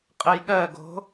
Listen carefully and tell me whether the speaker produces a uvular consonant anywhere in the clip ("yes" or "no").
yes